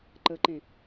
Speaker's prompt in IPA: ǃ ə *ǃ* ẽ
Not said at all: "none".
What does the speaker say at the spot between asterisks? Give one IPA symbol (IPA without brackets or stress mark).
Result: ǃ